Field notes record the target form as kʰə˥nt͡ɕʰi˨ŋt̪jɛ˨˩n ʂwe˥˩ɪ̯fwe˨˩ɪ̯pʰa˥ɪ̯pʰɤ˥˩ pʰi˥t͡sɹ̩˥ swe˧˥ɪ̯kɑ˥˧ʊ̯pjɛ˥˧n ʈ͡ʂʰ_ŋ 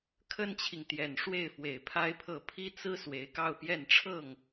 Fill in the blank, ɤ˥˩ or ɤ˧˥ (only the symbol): ɤ˥˩